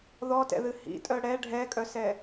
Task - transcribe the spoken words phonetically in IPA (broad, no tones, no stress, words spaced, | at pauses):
ðɔtɛ̰ðɨ hḭtʼœ ɽɛ ɖʱɛkʼœsɛ